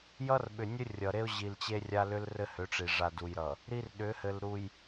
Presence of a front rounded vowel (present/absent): present